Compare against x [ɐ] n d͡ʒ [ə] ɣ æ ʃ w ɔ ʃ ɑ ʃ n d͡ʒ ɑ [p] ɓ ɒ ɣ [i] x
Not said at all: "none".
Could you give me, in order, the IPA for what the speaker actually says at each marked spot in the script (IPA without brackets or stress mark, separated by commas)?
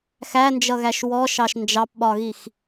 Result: æ, ʌ, p, i